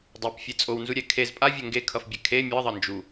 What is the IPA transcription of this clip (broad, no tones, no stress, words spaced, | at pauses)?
dˤepfʲe t͡sʼownzuɾʲɛ kʰez pʼavʲo ŋɡekʰʌfbʲɛ kʰe mʲʌðˤʌ nd͡ʒu